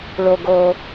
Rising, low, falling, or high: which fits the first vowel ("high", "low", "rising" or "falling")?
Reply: high